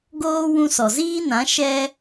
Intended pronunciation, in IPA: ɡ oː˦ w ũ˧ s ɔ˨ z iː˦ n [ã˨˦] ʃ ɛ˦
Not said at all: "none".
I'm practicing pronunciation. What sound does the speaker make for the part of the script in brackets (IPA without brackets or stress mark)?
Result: ã˨˦